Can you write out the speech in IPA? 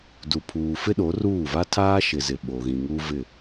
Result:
du˨pʰuː˨ fɪ˦ɗo˨˦ruː˦˨ va˦tʰaː˦ʃɪ˨zɪ˨ ɓo˨ɣĩ˨ŋu˦ vɪ˦˨

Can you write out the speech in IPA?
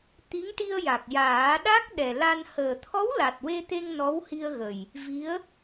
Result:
t̪i˧˥ŋʈi˧ə̯ja˨˩k̚ jaː˨˩˦ɗa˦˥k̚ ɗɛ˨˩la˧n həː˨˩t̪ʰɔ˧˥w la˨˩t̚we˧t̪e˧ŋ nɔ˧˥whi˧ə̯ɣə˨˩j | vi˧˥ə̯

